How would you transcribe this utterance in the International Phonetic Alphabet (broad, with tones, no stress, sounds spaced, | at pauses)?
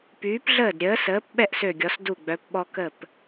p yː˩˧ p ɮ əː˧˩ d ɾʲ əː˩˧ s əː˩˧ p ɓ ɛ˥˧ ʔ s ø˧˩ ɡʲ ɔ˩˧ s d u˧˩ ɡ͡b œ˩˧ p ɓ ɔ˧ k ə˧˩ p